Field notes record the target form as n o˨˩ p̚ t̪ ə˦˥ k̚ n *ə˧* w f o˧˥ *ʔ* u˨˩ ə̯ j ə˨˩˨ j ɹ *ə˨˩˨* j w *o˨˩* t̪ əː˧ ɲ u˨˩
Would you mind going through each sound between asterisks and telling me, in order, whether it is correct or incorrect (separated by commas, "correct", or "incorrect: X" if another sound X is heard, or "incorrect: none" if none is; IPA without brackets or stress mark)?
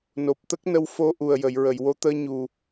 correct, correct, correct, incorrect: o˧˥